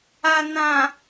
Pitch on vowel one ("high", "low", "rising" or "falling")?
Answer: low